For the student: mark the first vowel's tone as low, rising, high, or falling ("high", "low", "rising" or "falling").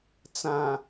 low